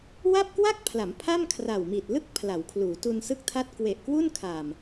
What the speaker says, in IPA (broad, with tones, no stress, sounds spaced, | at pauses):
w a˥˩ p̚ k w a˥˩ k̚ pʰ l a˩˦ m pʰ a˥˩ m kʰ r a˨˩ w m i˨˩ t̚ l ɯ˥˩ k̚ pʰ l a˩˦ w kʰ l uː˩˦ t u˧ n s ɯ˥˩ k̚ tʰ a˥˩ t̚ k w e˨˩ ʔ k w u˥˩ n kʰ a˨˩ m